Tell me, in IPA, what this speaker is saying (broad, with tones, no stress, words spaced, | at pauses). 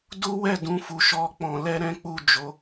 du˦wɛ˦˨dũ˧ fu˨ʃɔ˧ k͡pɔ̃˨lɛ˧ɾɛ̃˦ k͡pu˦˨d͡ʒo˨˦